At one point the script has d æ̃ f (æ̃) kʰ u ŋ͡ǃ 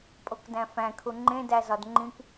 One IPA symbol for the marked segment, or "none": æ̃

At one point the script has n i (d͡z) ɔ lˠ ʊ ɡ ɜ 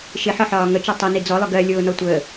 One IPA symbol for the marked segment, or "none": d͡z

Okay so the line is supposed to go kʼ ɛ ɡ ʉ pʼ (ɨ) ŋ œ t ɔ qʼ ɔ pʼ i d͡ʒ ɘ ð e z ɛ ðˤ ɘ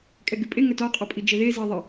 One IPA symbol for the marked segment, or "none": e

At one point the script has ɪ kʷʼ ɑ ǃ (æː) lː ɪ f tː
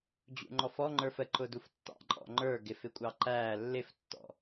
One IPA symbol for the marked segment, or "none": æː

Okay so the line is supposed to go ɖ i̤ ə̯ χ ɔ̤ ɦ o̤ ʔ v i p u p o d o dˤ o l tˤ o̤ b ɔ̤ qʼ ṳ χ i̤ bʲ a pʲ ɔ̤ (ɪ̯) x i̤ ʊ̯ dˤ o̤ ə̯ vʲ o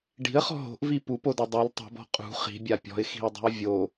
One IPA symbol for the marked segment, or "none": ɪ̯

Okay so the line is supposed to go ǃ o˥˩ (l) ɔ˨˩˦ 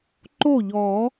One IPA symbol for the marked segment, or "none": ʎ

